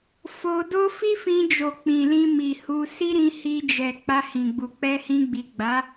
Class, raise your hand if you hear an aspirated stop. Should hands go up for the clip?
no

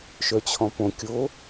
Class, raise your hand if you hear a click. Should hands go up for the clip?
no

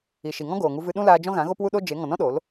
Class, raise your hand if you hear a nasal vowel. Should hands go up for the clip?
yes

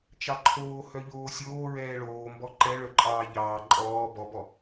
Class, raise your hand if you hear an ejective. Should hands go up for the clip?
yes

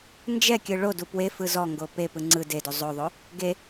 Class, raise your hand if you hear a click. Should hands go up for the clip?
yes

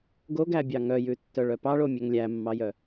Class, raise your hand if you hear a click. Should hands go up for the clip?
no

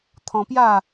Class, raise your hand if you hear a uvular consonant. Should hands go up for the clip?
no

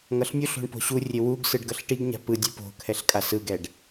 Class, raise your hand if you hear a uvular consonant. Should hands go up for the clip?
no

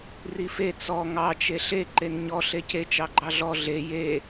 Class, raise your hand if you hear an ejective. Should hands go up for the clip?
no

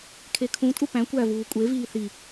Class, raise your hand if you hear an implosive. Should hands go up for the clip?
no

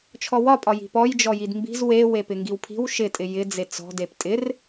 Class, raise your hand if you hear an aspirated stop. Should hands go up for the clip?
yes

